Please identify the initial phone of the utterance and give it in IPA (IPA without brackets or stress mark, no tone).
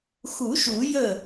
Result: x